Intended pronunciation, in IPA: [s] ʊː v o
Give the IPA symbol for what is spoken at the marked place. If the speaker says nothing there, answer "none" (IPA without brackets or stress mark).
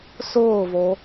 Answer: s